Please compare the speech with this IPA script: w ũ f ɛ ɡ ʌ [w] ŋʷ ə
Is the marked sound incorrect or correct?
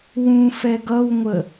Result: correct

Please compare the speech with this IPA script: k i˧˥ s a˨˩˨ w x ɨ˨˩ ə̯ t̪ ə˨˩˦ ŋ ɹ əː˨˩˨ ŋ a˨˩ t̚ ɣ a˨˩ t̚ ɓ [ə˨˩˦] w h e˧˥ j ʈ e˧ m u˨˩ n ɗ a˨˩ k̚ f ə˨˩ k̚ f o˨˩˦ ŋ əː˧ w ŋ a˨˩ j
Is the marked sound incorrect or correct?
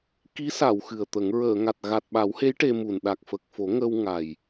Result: incorrect: a˨˩˦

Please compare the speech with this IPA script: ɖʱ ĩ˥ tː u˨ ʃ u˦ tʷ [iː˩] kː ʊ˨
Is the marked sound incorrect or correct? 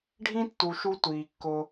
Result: correct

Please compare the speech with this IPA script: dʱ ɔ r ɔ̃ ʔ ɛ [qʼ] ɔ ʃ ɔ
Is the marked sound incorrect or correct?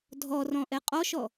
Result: correct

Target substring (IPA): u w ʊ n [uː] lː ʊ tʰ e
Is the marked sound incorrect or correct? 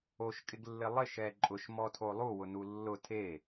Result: incorrect: u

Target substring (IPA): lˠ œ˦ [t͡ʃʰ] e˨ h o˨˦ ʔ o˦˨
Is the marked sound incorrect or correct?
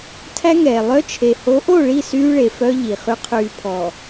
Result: correct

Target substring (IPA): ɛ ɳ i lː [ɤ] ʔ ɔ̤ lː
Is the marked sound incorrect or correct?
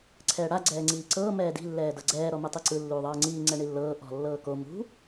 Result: incorrect: ɤː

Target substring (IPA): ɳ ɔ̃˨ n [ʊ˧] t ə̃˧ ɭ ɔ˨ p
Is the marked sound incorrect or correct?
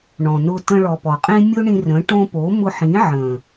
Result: correct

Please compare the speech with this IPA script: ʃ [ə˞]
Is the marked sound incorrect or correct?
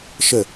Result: incorrect: ə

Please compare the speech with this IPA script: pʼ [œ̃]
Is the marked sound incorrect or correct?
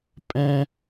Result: incorrect: ɛ̃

